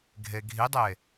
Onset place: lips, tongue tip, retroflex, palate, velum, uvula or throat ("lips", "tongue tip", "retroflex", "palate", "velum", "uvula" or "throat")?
velum